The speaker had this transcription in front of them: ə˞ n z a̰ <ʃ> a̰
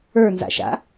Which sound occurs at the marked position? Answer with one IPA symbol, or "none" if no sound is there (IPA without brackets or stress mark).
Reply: ʃ